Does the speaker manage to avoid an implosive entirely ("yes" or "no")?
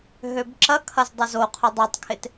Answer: yes